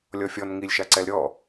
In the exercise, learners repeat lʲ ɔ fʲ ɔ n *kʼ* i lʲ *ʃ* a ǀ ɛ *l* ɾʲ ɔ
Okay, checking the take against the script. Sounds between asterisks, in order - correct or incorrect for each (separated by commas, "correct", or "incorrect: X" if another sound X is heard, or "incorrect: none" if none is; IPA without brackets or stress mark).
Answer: incorrect: ŋ, correct, correct